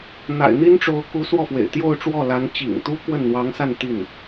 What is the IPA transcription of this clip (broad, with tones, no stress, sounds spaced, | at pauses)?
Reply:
n̪ a̰˨˩ ɪ̯ n̪ i˥ n ʈ͡ʂ o˧˥ ʊ̯ k u˧˥ s w ɔ˥˩ f w ḛ˨˩ ɪ̯ t̪ j o˥˧ ʊ̯ ʈ͡ʂ w ɔ˥˩ l a˧˥ n t͡ɕ ḭ˨˩ ŋ t̪ u˥ k w ə˥˩ n n̪ w ɑ˧˥ ŋ s a˥˧ n t̪ i˥˩ n